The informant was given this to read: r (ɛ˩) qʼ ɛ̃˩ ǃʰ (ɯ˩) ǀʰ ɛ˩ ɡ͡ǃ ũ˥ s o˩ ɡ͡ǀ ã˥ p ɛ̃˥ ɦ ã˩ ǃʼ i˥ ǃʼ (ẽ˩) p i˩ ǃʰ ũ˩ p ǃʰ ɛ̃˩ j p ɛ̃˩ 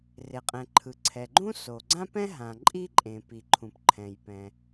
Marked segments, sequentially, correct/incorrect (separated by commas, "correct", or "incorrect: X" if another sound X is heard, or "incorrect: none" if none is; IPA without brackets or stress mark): incorrect: e˩, correct, correct